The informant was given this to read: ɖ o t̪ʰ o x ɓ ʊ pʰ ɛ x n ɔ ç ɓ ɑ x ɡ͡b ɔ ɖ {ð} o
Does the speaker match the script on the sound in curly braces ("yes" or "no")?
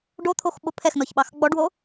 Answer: no